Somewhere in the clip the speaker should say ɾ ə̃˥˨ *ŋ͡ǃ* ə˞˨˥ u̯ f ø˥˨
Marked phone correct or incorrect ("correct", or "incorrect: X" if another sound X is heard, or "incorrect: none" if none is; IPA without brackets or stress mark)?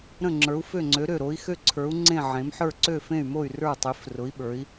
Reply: incorrect: ŋ͡ǁ